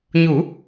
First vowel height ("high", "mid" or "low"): high